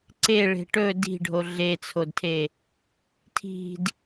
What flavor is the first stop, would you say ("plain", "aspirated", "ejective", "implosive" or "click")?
click